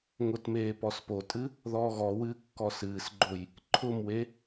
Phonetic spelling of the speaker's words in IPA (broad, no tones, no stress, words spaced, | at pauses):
ŋʊtmeː pɔspotʼɨ | ðɔːɣɔwɨː kːɔsɨːsɡ͡ǃoj | ǃʰʊmwe